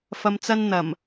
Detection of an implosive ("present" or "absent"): absent